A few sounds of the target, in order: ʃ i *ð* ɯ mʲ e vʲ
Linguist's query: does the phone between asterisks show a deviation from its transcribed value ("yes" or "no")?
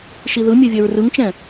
no